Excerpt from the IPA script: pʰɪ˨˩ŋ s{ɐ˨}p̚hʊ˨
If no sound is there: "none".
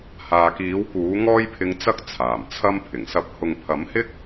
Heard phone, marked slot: ɐ˨˥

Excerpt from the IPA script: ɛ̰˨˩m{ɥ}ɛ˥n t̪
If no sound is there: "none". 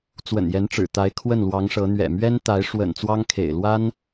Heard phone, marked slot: ɥ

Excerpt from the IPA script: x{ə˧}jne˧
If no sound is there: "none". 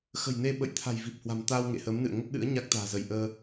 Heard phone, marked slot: ə̤˨˩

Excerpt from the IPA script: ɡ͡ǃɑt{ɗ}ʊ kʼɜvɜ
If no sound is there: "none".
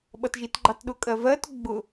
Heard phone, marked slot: ɗ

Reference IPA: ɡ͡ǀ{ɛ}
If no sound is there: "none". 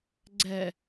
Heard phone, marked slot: ɛ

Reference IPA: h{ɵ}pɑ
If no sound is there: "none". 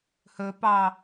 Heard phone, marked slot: ɵ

